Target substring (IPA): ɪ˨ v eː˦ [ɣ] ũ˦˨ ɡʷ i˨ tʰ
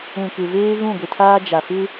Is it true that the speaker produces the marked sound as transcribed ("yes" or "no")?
yes